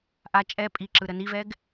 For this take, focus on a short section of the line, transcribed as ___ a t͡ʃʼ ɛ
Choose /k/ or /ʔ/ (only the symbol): ʔ